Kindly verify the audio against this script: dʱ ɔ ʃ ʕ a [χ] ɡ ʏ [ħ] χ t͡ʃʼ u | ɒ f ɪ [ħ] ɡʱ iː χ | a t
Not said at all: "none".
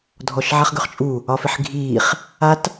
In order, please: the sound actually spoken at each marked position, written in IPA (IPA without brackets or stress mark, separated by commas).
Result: χ, none, ħ